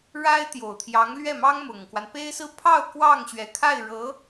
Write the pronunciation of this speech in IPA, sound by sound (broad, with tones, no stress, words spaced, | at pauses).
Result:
ɻa˥ɪ̯t̪jo˨˩ʊ̯t̪ʰjɑ˧˥ŋ lɥɛ˥˩mɑ˥ŋmʊ˨˩ŋkwa˦n pe˥ɪ̯sɹ̩˥ pʰɑ˥˧ʊ̯ kwɑ˥˩ŋ ɕɥɛ˨˩kʰa˥˩ɪ̯ ɻɤ˧˥